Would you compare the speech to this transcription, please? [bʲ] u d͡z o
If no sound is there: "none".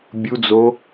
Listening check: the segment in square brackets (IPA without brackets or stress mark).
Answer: bʲ